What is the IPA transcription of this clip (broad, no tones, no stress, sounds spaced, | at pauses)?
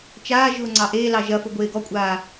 t͡ʃ aː ʒ ʊː ŋ͡ǀ ɑ ʔ eː l ɑ ʒ ɐ f ʊ ɡʷ eː ɡ ɔ kʷʼ aː